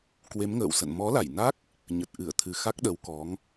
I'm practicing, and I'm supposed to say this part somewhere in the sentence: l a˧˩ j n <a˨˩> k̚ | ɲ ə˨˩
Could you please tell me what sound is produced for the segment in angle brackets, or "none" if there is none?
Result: a˦˥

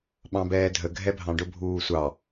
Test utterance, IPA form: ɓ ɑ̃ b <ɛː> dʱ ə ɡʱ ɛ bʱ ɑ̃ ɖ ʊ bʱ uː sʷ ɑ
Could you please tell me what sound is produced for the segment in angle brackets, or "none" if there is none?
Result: ɛː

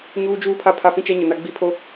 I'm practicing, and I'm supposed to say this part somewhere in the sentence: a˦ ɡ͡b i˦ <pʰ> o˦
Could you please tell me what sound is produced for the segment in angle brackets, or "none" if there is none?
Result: pʰ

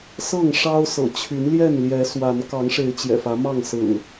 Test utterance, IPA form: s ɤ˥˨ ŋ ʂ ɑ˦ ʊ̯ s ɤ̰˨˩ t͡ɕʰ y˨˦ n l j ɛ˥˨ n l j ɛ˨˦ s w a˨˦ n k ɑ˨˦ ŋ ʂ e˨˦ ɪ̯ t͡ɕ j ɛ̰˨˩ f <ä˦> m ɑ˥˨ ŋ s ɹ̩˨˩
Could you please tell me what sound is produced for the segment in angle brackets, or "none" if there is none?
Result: ä˨˦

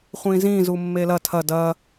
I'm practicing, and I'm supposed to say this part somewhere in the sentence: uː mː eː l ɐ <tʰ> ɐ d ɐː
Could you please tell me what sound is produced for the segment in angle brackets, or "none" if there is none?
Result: tʰ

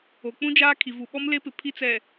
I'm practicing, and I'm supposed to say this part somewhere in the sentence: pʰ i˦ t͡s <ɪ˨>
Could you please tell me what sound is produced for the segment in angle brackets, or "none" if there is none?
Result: ɛ˨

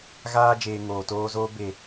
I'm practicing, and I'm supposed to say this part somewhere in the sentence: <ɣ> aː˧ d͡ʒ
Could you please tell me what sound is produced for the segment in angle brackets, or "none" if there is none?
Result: ɣ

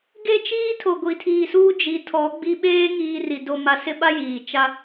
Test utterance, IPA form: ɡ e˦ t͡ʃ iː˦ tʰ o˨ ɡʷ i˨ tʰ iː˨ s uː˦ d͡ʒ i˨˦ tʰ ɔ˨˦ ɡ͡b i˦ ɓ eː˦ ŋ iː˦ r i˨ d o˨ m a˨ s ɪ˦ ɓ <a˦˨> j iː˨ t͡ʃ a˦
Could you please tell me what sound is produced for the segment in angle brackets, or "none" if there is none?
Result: a˦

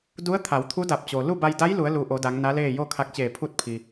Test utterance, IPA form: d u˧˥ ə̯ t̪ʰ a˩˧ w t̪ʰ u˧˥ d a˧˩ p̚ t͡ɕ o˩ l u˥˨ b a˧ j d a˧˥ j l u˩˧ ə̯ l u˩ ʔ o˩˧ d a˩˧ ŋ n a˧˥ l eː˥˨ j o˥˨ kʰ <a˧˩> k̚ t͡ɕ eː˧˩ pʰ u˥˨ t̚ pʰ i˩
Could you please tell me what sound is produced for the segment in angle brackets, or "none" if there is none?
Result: a˧˥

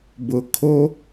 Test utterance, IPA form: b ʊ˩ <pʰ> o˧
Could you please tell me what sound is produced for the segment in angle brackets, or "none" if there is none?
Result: kʰ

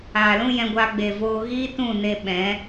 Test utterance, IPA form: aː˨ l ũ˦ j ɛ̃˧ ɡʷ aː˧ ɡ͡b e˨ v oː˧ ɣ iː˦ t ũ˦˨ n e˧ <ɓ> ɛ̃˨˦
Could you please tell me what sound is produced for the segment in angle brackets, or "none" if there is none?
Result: ɓ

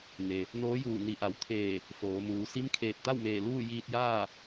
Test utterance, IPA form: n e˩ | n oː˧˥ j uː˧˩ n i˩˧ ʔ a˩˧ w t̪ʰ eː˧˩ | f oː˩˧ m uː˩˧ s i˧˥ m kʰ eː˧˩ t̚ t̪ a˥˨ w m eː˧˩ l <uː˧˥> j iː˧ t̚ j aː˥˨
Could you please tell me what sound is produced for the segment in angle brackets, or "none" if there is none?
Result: uː˥˨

